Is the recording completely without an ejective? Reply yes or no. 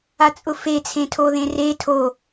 no